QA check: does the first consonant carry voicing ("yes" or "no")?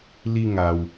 yes